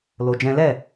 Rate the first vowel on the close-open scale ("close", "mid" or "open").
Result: mid